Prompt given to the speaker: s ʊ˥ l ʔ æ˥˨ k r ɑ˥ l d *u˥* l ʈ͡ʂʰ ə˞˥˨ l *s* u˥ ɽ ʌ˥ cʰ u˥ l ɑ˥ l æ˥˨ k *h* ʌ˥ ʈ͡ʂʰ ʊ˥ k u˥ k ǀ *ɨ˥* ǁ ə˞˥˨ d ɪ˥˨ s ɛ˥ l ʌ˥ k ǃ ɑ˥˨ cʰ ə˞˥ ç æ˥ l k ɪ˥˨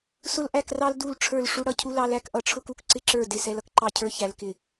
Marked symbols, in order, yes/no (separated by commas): no, no, no, no